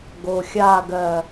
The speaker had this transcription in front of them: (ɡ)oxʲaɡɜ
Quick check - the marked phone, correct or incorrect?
correct